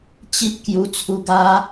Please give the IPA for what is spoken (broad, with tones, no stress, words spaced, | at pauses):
t͡ɕi˦p̚ kju˧t͡sʰu˧ ɡa˦